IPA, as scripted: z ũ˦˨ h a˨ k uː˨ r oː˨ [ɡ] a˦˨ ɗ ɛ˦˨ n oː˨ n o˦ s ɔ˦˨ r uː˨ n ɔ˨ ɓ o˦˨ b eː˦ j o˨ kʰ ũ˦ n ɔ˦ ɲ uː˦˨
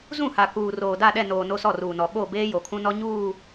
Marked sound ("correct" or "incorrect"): incorrect